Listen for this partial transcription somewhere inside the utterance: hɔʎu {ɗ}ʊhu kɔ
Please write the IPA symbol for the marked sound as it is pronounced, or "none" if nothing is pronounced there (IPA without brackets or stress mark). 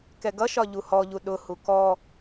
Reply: ɗ